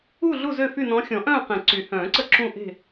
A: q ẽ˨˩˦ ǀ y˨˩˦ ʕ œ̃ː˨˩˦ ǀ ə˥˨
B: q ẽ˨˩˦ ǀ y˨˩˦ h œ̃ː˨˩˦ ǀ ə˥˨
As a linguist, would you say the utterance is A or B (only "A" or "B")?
B